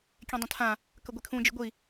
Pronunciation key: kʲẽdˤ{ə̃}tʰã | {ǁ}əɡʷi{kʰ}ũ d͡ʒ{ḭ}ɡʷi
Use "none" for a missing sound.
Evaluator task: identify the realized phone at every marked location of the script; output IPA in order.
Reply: ə̃, k, kʰ, ḭ

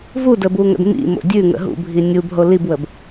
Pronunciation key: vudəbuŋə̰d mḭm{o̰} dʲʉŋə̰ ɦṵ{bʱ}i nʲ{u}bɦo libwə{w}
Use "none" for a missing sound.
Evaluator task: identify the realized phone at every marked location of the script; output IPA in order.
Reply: o̰, bʱ, u, b

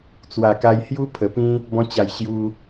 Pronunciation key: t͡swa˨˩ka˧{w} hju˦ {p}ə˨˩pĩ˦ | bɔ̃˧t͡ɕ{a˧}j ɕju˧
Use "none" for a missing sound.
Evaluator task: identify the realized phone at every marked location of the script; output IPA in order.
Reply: j, pʰ, a˨˩

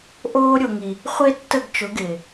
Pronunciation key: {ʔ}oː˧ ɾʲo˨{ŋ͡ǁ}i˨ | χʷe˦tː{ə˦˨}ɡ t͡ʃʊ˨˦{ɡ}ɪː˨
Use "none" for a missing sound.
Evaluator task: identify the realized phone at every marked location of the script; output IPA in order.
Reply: ʔ, ŋ, ə˦˨, ɡ

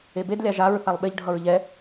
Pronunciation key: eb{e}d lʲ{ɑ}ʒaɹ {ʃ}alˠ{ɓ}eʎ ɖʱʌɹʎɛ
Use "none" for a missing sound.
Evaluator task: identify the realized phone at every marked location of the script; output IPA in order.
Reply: e, a, θ, ɓ

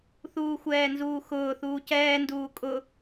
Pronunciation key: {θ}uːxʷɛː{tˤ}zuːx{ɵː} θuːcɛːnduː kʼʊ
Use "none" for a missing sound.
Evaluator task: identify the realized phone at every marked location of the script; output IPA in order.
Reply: θ, n, ʊː

